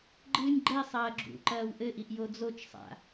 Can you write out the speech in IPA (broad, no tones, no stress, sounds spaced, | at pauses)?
ɡ͡ǃ ɨː nʲ ɡ͡ǃ ɛ sˤ ɐː ɡ͡ǁ ṵ ǃ ɐː w ʔ ɘ ʔ i ʔ j o d͡z o t͡ʃ sˤ a̰